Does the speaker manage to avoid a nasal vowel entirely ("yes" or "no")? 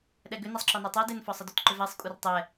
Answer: yes